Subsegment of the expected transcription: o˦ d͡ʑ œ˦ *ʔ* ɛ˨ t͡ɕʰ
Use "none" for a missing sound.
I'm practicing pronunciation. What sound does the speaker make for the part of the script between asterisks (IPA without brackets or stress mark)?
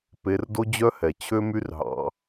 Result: h